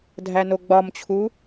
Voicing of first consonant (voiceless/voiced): voiced